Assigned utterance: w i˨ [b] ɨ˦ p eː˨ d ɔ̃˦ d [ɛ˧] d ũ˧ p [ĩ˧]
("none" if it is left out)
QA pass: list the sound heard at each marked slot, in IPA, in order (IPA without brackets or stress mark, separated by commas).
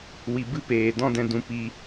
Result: b, ɛ̃˧, i˧